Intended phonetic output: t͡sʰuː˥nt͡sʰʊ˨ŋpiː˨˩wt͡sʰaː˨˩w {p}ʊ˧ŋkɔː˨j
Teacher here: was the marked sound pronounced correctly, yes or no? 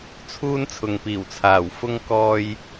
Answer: no